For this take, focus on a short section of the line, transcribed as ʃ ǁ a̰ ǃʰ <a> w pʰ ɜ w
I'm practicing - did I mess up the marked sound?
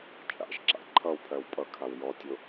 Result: yes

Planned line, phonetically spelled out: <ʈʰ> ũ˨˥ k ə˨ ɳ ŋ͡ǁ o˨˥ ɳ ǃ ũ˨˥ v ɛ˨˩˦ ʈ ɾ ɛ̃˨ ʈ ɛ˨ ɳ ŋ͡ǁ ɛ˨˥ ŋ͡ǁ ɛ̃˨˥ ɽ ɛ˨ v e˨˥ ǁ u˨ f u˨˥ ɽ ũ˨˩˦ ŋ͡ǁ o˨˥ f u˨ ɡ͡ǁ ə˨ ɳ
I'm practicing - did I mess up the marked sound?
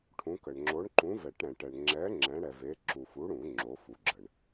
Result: no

